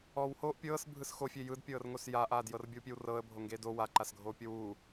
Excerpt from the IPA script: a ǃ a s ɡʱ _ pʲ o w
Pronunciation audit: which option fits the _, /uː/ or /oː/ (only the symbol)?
oː